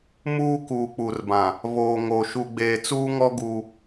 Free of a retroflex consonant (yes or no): yes